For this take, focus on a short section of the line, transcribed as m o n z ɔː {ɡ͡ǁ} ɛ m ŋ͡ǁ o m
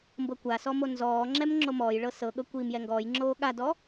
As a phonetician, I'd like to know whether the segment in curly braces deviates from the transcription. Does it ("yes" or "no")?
yes